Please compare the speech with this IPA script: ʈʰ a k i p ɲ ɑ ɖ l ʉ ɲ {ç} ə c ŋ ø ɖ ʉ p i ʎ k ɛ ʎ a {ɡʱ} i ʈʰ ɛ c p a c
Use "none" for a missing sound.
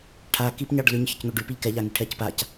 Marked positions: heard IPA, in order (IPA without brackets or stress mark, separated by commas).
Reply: ç, ŋ